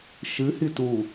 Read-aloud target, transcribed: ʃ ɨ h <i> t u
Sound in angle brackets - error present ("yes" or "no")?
no